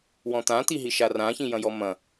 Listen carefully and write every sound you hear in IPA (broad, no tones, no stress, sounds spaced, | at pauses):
w ɔ̃ t̪ ã t̪ i ɦ i ʃ a r ã ç ĩ j ɐ̃ j ɔ m ɐ̃